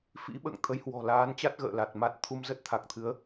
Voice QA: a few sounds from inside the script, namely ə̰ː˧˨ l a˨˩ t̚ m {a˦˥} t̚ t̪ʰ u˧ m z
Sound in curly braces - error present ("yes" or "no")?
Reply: no